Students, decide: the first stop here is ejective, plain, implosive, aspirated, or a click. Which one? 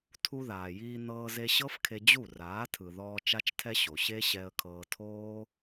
aspirated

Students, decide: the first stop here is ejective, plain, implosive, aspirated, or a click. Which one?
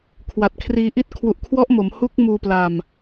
aspirated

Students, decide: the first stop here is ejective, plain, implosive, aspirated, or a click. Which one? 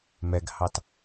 plain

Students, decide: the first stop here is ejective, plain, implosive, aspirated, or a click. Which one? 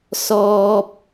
plain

